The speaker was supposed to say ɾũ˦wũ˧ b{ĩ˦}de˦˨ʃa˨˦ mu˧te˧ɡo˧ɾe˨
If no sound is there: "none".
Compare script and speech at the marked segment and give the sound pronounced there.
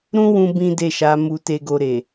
ĩ˦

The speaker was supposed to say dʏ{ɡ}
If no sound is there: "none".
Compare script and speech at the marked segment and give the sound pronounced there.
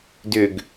ɡ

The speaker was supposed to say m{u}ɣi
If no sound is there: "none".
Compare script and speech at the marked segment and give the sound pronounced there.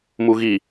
u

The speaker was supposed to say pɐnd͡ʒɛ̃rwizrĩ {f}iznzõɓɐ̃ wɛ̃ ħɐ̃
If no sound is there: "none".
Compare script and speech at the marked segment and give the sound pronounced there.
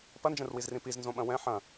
p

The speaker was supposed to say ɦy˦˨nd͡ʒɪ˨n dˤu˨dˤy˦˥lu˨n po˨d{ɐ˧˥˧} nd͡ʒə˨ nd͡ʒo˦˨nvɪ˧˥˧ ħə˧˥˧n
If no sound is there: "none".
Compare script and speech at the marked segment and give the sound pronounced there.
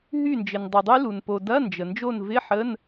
ɐ˧˥˧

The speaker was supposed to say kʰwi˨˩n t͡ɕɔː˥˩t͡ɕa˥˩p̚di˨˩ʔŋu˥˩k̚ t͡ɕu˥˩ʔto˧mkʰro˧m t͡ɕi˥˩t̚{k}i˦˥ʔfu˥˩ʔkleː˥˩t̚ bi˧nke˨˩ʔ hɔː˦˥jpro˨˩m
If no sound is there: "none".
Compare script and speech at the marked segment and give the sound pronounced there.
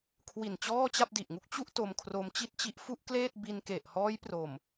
t͡ɕ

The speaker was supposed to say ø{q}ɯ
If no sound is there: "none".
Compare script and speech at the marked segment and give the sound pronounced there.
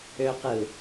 q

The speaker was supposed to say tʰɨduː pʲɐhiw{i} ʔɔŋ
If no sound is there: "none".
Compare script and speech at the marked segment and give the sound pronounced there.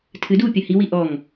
i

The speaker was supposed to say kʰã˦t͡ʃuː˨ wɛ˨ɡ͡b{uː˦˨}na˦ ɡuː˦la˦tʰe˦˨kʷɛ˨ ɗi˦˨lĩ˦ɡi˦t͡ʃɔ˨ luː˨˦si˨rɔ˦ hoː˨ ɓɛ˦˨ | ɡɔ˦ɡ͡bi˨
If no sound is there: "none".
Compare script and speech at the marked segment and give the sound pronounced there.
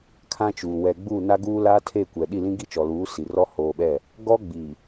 uː˦˨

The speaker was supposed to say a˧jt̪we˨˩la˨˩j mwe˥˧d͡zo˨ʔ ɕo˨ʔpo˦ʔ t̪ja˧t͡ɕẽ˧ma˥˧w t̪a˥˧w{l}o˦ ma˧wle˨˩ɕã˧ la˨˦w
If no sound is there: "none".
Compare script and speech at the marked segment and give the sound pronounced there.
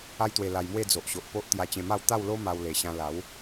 l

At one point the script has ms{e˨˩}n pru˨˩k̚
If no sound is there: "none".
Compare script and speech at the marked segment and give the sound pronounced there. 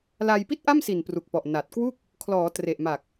i˨˩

